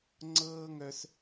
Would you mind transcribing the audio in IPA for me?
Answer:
ŋ͡ǀɤː˥ŋœ˧s

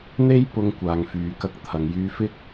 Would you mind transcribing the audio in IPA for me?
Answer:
n̪e˥jpʊ˧ŋ kʷaː˨ŋfyː˨kɐ˧k̚ t̪ʰɐ˨ŋjyː˧fɪ˥k̚

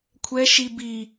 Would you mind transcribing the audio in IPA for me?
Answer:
kʷʰɛ ʃi bi

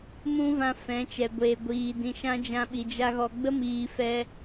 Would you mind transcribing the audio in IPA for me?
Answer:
mũ˦vã˧ fɛ̃˨˦t͡ʃɛ˨ɡʷeː˨ɡʷiː˨ dĩ˨ʃã˧ d͡ʒã˧ɓi˨d͡ʒa˧ ɣɔ˨ɡ͡bə˦miː˨ fɛ˧

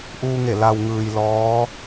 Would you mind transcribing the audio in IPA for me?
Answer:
ʔuː˧ŋe˧˩ la˩wŋɯː˩j lɔː˧˥

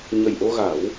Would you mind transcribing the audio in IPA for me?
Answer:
ɲə˨˩jʔo˧ɣa˨˩˦w

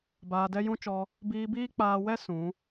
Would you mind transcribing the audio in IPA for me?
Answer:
baː˧dɛ˦jũ˦t͡ʃɔ˧ | biː˧biː˦k͡paː˧wɛ˦ sũ˨˦

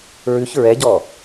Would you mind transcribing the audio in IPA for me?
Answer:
ɹʉç ɹɛɟɔ

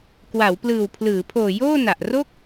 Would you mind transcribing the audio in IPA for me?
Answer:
kwa˩˦wplɯː˨˩wpʰlɯː˩˦pʰoː˨˩ joː˥˩na˨˩ʔ ro˥˩k̚

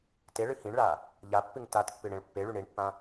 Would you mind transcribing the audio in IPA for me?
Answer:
teɭɨ hĩɳɭa | ʎapːɨŋ tatpːɨ ɽẽɭpːeɭy ɳiɳpːã

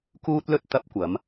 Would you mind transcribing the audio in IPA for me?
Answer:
kuː˥t̚lɵ˥t̚ t̪ɐ˧p̚kʷɐ˨˧m

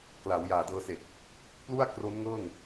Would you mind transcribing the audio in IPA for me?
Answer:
kla˩˦wjaː˨˩ dɤː˧se˨˩k̚ | plu˥˩a̯kro˦˥nŋɤː˥˩ŋ

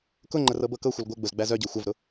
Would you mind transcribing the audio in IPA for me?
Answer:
kʊŋ͡ǃə rɤbɤkɤxʷɤl ɡʷɤɡ͡bʊz ɡ͡bæzœɟɤ xʷavɾʊ

